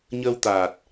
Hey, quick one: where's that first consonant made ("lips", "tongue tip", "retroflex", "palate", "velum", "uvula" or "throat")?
palate